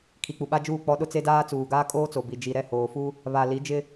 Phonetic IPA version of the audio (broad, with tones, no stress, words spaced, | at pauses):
kʰi˨k͡pu˨ɓa˦d͡ʒuː˦˨ k͡pɔ˦ ɗʊ˦t͡se˦daː˦ t͡suː˨ɡaː˦kʼoː˦t͡so˨ bi˨d͡ʒi˨ɾɛ˦˨ hoː˨fu˦ | βa˨ li˨˦d͡ʒɪ˦